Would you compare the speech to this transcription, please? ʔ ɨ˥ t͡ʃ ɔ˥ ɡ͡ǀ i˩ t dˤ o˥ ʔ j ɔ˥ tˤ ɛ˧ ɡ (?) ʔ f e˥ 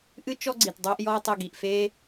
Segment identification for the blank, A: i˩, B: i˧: A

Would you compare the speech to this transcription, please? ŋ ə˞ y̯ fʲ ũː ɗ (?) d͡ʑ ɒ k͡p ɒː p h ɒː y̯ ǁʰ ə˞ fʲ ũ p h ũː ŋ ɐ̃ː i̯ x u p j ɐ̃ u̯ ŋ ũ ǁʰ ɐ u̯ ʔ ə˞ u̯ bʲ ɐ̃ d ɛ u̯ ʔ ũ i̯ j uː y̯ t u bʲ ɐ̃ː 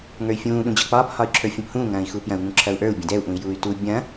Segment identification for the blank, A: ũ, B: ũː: A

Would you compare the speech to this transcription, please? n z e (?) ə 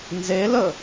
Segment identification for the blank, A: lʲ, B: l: B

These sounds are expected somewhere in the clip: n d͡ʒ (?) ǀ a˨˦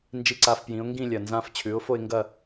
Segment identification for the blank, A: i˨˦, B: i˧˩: A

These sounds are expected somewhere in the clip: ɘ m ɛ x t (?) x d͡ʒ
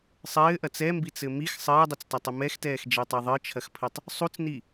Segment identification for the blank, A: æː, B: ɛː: B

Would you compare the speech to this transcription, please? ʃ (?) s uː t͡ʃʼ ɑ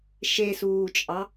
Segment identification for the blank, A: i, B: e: B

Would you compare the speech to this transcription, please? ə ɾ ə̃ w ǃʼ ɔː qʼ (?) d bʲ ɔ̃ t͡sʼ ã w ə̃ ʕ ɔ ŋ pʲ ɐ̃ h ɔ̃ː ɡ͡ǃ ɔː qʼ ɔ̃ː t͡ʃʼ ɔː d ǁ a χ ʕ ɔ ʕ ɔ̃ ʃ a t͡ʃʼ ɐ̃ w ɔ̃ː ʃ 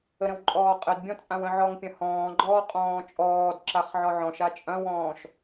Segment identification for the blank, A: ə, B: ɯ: A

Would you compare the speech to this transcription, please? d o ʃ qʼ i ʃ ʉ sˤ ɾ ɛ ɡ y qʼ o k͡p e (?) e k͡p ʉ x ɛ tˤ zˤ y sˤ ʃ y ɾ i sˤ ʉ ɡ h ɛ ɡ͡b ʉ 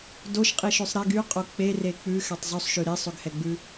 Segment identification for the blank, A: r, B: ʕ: A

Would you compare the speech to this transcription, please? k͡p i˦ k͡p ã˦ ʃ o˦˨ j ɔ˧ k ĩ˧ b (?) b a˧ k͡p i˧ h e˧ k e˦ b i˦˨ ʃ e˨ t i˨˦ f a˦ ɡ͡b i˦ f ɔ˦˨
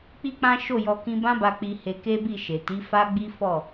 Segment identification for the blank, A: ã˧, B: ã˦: B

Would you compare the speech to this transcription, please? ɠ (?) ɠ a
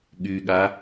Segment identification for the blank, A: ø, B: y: B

